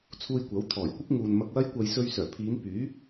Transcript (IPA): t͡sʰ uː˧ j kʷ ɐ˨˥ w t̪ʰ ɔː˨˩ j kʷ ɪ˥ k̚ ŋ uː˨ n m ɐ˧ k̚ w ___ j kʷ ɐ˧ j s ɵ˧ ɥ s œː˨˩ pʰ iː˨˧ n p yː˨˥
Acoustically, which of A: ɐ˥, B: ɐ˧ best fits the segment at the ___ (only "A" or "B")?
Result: A